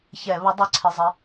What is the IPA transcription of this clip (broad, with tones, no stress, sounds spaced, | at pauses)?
ç ɛ˧˩˧ β ə˧˥ dˤ ə˧˥˧ ǀʰ ɪ˧˥˧ zˤ ɪ˧˥